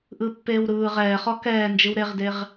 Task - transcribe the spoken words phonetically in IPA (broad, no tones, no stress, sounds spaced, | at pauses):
ʔ ɯ pː eː w ɾ ɯː ʁ ɛː χ ɔ k ɛː n d͡ʒ ɯ w ɾ e ʁ d e ʁ